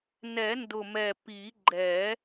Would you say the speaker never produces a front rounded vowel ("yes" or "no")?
yes